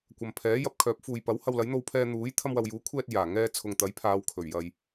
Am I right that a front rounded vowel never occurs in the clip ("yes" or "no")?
no